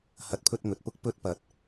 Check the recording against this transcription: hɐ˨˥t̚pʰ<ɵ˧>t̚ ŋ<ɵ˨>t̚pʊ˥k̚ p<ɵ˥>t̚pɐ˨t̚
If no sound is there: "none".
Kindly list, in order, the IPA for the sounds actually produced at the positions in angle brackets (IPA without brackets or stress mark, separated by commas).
ɵ˧, ɵ˨, ɵ˧